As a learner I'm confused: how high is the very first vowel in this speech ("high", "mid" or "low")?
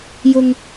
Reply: high